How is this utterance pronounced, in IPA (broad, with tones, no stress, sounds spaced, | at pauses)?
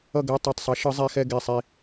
ʌ˥˧ ɡ ɛ˧˥˧ tˤ o˧˩ tˤ sˤ ʌ˨˥ ʃ ɯ˨˥ zˤ e˧˥˧ x ɛ˥˧ ɡ e˧˩ sˤ i˧˩